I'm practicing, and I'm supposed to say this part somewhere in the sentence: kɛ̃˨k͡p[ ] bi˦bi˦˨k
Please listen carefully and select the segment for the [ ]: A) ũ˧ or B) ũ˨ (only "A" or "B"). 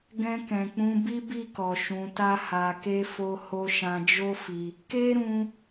A